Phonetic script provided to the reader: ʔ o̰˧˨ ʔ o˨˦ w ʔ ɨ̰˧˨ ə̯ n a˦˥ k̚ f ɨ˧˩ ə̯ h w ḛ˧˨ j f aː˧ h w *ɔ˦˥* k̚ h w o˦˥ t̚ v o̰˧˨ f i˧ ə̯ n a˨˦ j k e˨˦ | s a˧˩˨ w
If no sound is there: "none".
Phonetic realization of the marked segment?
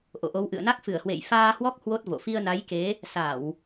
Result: ɔ˦˥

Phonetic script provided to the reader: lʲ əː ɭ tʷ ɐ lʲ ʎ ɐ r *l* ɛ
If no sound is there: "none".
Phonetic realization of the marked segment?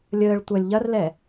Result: l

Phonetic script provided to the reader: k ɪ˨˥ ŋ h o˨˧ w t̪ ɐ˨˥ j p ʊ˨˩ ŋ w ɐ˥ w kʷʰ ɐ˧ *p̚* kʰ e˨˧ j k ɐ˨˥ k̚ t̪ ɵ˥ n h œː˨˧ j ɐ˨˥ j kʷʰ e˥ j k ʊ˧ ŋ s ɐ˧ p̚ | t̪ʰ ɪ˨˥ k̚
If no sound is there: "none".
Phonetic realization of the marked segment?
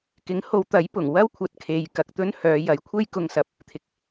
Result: t̚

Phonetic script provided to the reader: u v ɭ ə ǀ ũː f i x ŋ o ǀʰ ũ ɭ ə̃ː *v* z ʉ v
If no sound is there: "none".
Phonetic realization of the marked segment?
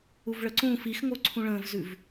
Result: v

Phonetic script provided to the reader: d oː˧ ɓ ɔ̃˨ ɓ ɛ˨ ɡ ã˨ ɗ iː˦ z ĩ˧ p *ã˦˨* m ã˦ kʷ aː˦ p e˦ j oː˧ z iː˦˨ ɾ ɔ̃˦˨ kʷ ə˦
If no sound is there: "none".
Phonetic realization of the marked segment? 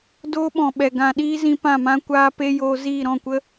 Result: ã˦˨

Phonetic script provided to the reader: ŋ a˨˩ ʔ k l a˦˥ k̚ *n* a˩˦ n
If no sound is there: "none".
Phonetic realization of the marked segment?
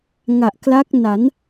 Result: n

